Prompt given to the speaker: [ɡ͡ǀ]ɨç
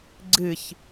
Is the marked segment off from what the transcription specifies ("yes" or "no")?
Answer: no